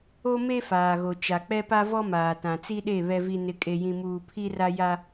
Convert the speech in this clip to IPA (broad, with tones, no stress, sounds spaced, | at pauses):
o˦ m e˦ f aː˨ ɣ o˨ t͡ʃ a˨ k͡p ɛ˦ p a˦ v ɔ˦ m aː˨ t ã˨ t͡s i˦ ɗ e˦˨ β ɛ˨ v i˨ n ɪ˨ kʼ e˨ j ĩ˨ m uː˨ pʰ i˦ r a˦ j a˦